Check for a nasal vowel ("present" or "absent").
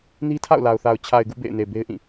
present